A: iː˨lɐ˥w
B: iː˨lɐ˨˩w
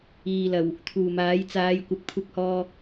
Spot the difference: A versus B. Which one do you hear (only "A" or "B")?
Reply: B